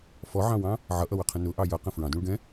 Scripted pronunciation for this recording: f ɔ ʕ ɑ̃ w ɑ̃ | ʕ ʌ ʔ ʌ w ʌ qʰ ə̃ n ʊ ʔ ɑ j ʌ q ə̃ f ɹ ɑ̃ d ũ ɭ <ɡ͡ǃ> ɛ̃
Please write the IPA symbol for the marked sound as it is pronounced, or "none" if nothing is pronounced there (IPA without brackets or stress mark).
ɡ